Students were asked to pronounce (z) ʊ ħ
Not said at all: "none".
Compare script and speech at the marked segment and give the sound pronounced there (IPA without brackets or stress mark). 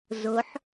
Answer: z